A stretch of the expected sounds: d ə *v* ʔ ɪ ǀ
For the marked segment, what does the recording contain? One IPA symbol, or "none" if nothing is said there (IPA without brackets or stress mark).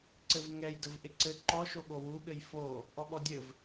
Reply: v